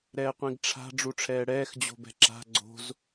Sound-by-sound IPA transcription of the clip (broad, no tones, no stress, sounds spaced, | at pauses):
ɾ ɛː qʷ ĩ ɡ ʈ͡ʂʰ a̤ ɖ͡ʐ u ʈ͡ʂʰ ɛː ɽ ɛː x d͡ʑ o̤ b ɛ̤ ǁ a̤ ɡ͡ǀ o̤ z